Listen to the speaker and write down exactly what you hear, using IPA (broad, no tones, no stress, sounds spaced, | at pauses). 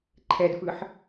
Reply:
ǃʰ ɛ d f ɯ ħ